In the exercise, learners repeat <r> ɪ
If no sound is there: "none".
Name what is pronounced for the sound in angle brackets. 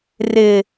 r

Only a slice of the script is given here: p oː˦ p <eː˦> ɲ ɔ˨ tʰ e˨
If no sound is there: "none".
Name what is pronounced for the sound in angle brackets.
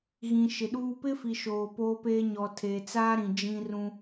eː˦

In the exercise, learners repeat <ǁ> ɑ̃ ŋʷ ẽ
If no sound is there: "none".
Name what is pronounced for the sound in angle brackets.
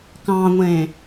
k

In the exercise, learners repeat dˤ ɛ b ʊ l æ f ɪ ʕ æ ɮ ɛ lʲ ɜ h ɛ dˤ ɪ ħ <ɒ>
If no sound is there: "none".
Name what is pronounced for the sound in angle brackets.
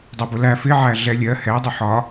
ɒ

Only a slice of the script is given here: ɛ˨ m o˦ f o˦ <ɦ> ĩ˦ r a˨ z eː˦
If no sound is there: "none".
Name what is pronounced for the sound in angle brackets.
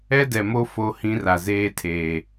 h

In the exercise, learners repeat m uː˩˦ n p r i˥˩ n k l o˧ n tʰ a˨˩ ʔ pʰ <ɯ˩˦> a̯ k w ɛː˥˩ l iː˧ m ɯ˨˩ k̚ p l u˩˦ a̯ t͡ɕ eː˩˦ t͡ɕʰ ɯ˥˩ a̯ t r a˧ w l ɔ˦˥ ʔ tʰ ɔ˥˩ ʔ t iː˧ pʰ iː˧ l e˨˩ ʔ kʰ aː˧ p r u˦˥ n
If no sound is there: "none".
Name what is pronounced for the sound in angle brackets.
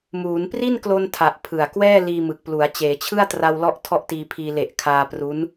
ɯ˨˩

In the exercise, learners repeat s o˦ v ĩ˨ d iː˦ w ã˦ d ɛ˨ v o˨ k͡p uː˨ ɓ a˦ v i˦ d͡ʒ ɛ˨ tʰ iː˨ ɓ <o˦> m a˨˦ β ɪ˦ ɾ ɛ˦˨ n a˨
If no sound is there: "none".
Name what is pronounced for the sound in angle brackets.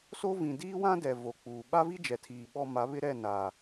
ɔ˦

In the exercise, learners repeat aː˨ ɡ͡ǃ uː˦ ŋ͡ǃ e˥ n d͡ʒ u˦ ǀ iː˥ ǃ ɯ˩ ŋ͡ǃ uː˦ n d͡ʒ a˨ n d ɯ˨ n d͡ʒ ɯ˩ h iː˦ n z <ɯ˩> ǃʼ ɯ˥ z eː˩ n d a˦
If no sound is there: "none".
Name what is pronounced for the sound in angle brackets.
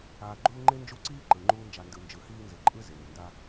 ɯ˩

